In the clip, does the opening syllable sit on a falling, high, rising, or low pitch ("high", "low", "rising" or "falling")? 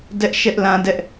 high